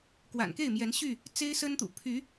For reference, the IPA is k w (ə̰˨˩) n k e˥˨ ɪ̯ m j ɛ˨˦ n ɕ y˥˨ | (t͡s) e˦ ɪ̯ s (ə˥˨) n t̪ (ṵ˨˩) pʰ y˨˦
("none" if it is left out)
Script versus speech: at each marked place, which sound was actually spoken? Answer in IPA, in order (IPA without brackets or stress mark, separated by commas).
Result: a̰˨˩, t͡s, ə˦, ṵ˨˩